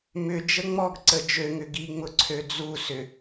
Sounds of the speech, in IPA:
m ʏ d͡ʒ ə ŋ͡m ɔ ɡ ǀ ə d͡ʒ ø ŋ ʏ ɡ i ŋ͡m ʊ ǀʰ ø d͡z u s ʏ

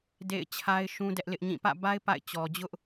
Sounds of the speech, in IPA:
d ḛ˦˨ ɪ̯ t͡ɕʰ a˦ ɪ̯ ʃ ũ˦ d ɛ˦ ʔ l ɪ˦ ʔ ɲ ĩ˦˨ p ä̰˦˨ b a˦ ɪ̯ p a̰˦˨ ɪ̯ t͡ɕ ɔ˨ d͡ʑ ʊ˦ ʔ

